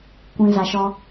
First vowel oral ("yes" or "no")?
no